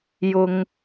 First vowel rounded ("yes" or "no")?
yes